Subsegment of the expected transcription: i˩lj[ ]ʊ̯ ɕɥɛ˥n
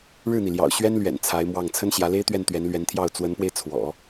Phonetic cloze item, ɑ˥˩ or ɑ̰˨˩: ɑ̰˨˩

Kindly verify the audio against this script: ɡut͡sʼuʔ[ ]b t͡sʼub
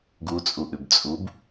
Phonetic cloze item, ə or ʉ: ʉ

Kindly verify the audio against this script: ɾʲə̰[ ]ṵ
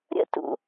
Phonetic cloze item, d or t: t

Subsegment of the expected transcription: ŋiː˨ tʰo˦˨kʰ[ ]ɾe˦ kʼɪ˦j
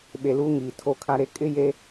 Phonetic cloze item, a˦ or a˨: a˦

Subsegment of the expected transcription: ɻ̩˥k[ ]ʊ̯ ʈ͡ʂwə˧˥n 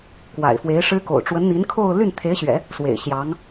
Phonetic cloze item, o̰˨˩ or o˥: o̰˨˩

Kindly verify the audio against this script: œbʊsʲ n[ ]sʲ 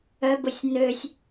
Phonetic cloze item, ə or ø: ø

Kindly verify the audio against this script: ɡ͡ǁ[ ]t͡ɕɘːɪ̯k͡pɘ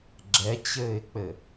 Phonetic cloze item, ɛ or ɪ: ɛ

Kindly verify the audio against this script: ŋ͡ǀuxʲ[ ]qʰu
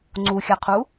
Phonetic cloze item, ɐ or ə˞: ɐ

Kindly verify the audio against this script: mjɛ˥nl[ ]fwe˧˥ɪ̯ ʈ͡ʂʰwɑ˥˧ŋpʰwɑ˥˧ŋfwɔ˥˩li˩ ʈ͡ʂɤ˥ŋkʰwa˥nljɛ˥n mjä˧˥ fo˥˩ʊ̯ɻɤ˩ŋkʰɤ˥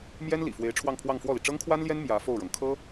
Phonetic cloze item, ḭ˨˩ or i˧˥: ḭ˨˩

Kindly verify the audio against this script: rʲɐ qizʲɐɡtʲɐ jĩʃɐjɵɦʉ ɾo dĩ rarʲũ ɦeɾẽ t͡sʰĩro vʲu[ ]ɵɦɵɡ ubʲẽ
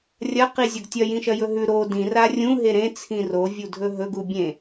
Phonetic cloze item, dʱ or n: dʱ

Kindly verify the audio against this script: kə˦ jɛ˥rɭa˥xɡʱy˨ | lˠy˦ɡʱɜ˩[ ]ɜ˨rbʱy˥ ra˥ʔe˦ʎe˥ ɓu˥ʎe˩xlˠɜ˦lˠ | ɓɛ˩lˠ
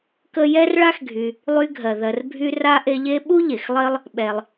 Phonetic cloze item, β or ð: ð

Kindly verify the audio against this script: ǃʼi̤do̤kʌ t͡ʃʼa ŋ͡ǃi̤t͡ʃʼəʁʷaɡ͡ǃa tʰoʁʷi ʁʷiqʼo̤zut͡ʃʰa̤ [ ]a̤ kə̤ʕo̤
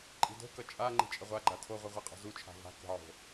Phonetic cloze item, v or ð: v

